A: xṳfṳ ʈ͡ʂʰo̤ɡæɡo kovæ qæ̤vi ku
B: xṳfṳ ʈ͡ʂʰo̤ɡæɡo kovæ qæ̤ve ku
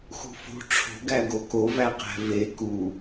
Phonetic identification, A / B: B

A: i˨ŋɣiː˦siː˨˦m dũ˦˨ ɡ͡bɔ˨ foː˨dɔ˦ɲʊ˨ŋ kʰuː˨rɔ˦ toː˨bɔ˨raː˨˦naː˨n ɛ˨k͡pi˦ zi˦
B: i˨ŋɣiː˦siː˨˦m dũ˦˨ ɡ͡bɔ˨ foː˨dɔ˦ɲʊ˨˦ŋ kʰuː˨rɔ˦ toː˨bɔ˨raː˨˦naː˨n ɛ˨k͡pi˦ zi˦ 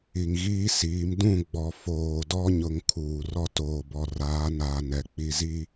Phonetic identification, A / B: A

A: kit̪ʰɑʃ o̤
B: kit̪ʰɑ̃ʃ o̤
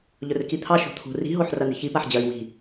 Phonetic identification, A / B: A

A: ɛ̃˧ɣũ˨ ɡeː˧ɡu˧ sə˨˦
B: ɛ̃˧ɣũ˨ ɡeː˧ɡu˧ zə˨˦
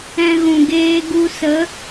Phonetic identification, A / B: A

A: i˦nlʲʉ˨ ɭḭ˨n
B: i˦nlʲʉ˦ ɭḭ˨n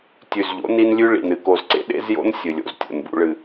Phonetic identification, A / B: B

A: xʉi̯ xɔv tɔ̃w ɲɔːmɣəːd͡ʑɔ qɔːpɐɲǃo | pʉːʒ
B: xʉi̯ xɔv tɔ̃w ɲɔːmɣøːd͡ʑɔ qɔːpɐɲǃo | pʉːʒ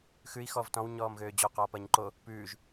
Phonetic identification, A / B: B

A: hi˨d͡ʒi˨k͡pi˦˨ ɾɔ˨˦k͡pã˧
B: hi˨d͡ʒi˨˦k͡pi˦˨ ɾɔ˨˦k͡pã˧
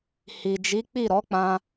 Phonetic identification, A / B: B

